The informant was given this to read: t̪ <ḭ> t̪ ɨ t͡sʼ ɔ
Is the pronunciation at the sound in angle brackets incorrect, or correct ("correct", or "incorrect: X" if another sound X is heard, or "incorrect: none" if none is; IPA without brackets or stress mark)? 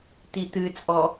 incorrect: i